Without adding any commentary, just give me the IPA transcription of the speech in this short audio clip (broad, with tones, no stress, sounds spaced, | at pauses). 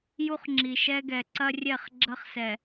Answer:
j u˦ χ ŋ͡ǁ i˨ ʃ ɛ˦ ɡ ɛ˨ ǀ ɐ˦ rʲ ɛ˦˨ χ ɡ͡ǁ ɐ˦ χ s ɛ˨